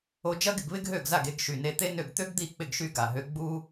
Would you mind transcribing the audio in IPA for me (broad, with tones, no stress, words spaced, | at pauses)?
o˧d͡ʒɐ˥ɡɪ˥˩ɡβɪ˥ɡ ɦø˥˩ɡza˥˩ɡe˧ɡʃy˨˩ ne˧t̪e˥nø˥˩ɡ t̪ø˥ɡd̪i˥˩k͡pɪ˥˩ɡʃy˧ ɡa˨˩ɦø˧ɡ͡bu˥